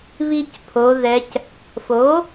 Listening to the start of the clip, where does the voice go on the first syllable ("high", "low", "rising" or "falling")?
high